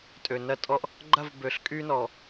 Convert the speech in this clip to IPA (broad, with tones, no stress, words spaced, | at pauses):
tʼø˨nɐ˦tʼɔ˦ʔ | ɡ͡ǃɐ˦˨vbø˨ɬ kʼy˦nɔ˨